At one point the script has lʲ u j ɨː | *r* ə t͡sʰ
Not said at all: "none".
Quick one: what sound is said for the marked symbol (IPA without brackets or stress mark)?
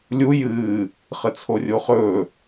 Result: χ